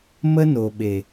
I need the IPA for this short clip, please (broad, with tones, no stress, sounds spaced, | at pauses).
m ə˦ n o˨ ɓ e˨